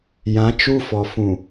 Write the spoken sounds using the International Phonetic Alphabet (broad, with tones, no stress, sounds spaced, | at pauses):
j ã˨˦ t͡ʃ u˦ f ɔ˨ f ũ˨